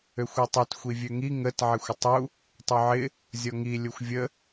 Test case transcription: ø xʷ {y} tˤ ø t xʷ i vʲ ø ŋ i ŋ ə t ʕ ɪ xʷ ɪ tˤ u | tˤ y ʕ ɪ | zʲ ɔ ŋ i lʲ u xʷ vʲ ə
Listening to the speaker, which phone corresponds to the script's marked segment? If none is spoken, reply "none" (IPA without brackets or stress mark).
ø